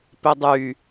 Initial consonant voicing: voiceless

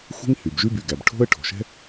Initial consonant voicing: voiceless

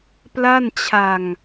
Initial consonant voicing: voiceless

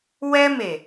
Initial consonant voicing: voiced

